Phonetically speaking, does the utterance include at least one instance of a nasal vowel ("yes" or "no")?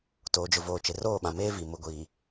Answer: yes